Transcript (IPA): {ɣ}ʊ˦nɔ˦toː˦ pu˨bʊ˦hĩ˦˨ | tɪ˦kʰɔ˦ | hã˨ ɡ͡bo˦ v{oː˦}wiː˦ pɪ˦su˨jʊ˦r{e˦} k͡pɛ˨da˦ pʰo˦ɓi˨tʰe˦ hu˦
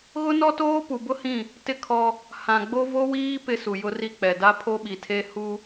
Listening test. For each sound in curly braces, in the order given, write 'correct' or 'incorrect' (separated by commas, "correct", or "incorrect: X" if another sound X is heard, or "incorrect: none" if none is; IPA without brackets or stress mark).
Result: correct, incorrect: o˦, incorrect: i˦